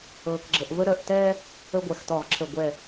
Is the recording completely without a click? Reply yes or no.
no